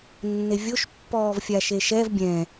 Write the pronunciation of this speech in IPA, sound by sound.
nː e vʲ o ʃ pː ɔː v fʲ a ʃ e ʃ ɛ v bʲ ɛ̃

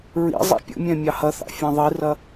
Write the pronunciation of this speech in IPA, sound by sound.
ɹ ḭ zˤ ḭ pʲ ə̰ mʲ ɛ̃ mʲ ɑ h ɐ θ ɑ̰ fʲ ɛ̃ ðˤ i r ɐ

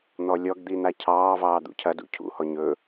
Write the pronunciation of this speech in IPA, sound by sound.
n̪ ɔ lʲ ɔ ɡ d̪ i n̪ a cʰ ɑː v ɑː d̪ ṵ cʰ ɐ d ṵ cʰ ṵ h ɔ ɲ ɵ

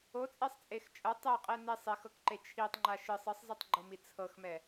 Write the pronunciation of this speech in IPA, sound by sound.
o t͡sʼ e sˤ t͡sʼ e x t͡ʃʼ ɤ tˤ ɛ qʼ ɛ n e sˤ e x ɤ k ǃ e t͡ʃʰ i tˤ ŋ͡ǃ a ʃ ɯ sˤ ɯ sˤ z ɯ tˤ ɡ͡ǃ ɤ m i t͡sʰ ɤ x m ɛ

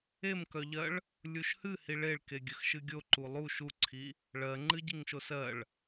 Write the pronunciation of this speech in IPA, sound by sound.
e m k œ ʎ ɜ ɭ | lʲ u ʃ h ɨ h i ɭ e ɭ k e ɡʲ ə x ʃ ɨ ɡʲ o ǃ u lˠ u ʃ u ǀʰ i | ɭ ɜ ŋ͡ǃ ɨ ɟ i ŋ ʃ o s ɜ ɭ

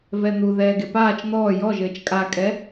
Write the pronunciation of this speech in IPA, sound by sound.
v ɛ n̪ u ð ɛː ɡ e p aː t͡ʃ n̪ ɔː j ɔ ʒ ɘː t͡ʃ kʼ a kʼ ɛ

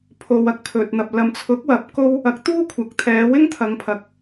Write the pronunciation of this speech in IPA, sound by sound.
pʰ o˨ w ɐ˥ k̚ pʰ ɵ˨ t̚ n̪ ɐ˨ p̚ l ɐ˨ m t͡sʰ ʊ˨˥ k̚ w ɐ˨˥ p̚ k o˥ w | ɐ˨˥ k̚ t̪ uː˥ kʷʰ ɐ˨ k̚ t̪ʰ ɛː˨˧ w ɪ˥ ŋ t̪ʰ ɐ˨˧ ŋ pʰ ɐ˨˥ k̚

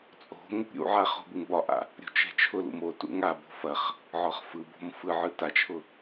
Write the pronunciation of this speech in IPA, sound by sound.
t͡sʼ o̤ ŋ | ɾʲ ṵ ʕ a χ o̤ b ɯ ŋ b ɒ ʔ a̰ | ɾʲ o̤ t͡ʃ ɛ̤ t͡ʃʰ ʊ l ṵ m o t ṵ ŋ a b o̤ f ɐ χ | ʕ ɒ χ f ɯ b o̤ m f ɯ ʕ ɯ t a t͡ʃʰ ʊ

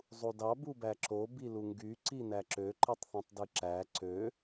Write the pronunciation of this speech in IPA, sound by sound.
zˤ u d ɑ b u b æ ǁ o b i l u ŋ ɡ y ǀ i n æ ǁ ø ǃ ɯ tˤ θ ũ tˤ d ɯ ǁ æ ǀ ø

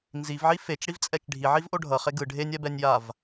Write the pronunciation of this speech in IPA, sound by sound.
n z i v ʕ i f e t͡ʃ ɽ i v t͡sʼ ɛ t͡ʃ ɖʱ i ʕ i v ʔ o ɖʱ ʌ χ e ɡ ɯ ɖʱ e nʲ ɛ b ɛ nʲ j a v

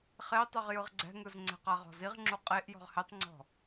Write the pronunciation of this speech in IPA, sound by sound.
χ e tˤ ɯ ʁ j ɯ ʁ ɡ͡ǀ ɛ̤ ŋ ɯ z ŋ͡ǀ ɛ̤ q a ʁ ɔ̤ z i ʁ ŋ͡ǁ u qʼ e ʔ j ɔ̤ ʁ h e tˤ ŋ͡ǀ ɔ̤

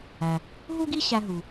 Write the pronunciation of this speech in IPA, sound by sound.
æ˩ | ɦ u˥ ɡ i˥ ɕ æ˧ ɦ u˩

